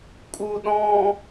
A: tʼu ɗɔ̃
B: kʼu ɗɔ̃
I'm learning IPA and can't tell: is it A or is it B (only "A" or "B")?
B